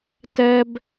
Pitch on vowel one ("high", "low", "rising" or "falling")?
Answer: high